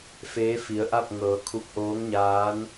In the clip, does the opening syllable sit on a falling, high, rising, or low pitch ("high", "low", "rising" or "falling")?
rising